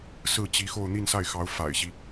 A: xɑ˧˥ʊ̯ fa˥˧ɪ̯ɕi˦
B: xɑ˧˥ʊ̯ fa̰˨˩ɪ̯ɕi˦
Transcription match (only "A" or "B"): B